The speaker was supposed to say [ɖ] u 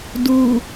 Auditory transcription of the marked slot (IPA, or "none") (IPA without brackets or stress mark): d